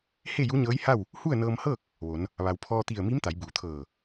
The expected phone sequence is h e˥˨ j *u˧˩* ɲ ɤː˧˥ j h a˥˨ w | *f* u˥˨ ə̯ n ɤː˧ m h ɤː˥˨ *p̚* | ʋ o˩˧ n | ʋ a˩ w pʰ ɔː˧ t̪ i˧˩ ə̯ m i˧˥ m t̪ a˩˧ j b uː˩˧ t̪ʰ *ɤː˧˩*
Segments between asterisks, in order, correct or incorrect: incorrect: u˧˥, incorrect: h, incorrect: k̚, correct

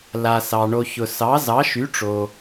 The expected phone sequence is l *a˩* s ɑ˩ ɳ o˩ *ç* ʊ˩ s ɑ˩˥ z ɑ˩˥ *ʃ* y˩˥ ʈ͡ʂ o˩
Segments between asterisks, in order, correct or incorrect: correct, correct, correct

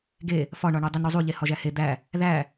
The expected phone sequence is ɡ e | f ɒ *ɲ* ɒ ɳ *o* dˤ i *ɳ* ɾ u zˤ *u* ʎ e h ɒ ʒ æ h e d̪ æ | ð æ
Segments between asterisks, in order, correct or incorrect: incorrect: ɳ, incorrect: u, incorrect: n, correct

